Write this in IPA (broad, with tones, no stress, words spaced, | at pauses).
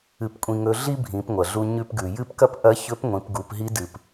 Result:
ɨ˧pkʷʼĩ˧ŋɵ˧˥ ɮi˥bʱĩ˩˧p ŋʷɐ˩ɮu˧ ɲʉ˧pɡʉ˩jɨ˥pkɐ˥p ʔɐ˧˥çɵ˧˥pŋʷĩ˩˧p ɡu˩˧pɦi˧˥dɨ˩p